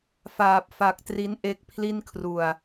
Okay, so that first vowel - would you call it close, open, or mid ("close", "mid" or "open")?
open